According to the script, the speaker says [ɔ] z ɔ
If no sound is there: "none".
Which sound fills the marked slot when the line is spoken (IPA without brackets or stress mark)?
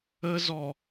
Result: ə